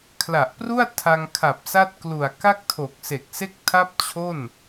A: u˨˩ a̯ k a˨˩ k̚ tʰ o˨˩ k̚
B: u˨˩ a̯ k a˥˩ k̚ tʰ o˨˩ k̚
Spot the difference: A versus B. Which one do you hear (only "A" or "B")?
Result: B